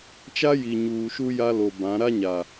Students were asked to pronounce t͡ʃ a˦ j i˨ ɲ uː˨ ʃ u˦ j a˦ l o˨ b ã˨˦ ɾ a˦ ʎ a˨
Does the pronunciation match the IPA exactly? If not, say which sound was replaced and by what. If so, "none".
ʎ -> ɲ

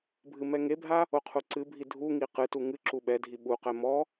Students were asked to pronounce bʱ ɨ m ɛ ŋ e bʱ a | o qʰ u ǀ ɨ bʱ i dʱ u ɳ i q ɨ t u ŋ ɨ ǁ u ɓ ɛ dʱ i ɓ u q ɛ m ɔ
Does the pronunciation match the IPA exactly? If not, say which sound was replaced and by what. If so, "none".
ɳ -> ŋ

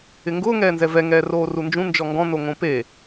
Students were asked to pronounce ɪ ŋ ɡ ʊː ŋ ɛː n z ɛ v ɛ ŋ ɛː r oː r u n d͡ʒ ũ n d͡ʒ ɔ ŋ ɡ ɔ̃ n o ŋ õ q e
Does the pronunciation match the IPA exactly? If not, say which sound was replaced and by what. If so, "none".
q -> p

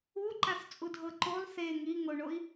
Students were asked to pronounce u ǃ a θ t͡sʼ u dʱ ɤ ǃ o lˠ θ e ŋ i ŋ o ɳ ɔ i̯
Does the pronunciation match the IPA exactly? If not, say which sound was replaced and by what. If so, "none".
ɔ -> o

